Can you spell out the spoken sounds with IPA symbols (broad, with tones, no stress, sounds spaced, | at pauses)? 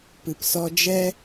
p ɨ˨ p s ɔ˧ d͡ʒ ɛ˦